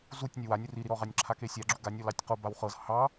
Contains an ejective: no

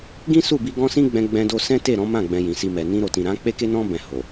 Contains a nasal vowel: yes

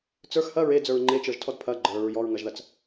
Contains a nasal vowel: no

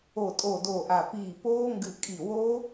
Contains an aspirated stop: no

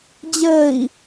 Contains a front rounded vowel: no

